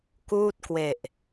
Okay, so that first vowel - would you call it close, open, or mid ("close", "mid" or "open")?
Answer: close